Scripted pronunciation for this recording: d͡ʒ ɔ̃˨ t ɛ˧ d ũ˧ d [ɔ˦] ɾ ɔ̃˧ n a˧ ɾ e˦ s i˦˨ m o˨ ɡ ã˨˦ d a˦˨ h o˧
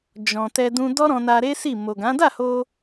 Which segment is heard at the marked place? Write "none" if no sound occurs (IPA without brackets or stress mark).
ɔ˦